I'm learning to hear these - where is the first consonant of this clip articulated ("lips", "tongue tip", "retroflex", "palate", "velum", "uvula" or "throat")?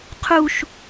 uvula